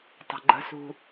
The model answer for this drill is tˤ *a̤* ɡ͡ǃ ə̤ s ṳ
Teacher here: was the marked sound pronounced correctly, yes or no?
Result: yes